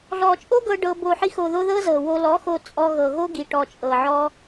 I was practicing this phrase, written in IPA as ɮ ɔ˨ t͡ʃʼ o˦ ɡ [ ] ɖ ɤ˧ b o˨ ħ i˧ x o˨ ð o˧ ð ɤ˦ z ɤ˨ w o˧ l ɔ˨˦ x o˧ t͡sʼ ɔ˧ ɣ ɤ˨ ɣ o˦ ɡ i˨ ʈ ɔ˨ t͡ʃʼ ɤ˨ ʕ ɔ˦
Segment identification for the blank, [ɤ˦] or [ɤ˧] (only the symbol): ɤ˧